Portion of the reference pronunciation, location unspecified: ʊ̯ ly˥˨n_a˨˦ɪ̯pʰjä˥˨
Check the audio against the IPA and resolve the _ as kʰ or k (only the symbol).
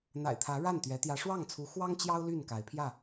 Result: k